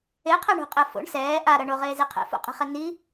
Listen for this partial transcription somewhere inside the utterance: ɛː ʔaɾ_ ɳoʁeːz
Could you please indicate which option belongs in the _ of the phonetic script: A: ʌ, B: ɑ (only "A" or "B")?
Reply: A